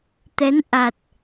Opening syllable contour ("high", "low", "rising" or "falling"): rising